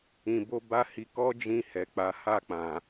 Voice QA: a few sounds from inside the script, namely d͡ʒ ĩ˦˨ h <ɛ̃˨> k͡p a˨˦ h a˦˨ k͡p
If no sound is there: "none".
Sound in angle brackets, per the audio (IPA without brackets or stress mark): ɛ˨